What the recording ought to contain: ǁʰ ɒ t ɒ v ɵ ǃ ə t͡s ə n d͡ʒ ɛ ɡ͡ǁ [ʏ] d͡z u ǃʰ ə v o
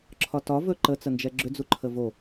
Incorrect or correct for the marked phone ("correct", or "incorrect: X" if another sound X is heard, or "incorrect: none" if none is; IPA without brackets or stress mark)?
correct